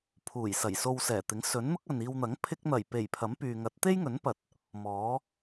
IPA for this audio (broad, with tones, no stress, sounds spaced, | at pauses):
pʰ uː˨˩ j s ɐ˨˩ j s o˧ w s ɛː˨˩ t̪ ɪ˨˥ ŋ s ɵ˨˥ n n̪ ʊ˥ k̚ ɐ˨ n iː˧ w n̪ ɐ˨˥ ŋ pʰ ɪ˥ k̚ n̪ ɐ˨˩ j p e˨˩ j pʰ ɐ˨˥ m p yː˨ ŋ ɐ˨˥ t̚ t̪ e˥ j ŋ ɵ˨˥ n p ɐ˨ t̚ | m ɔː˨˥